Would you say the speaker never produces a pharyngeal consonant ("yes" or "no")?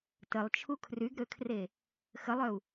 yes